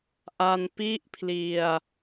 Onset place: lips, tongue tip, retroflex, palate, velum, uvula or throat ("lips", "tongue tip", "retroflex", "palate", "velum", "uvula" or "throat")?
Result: throat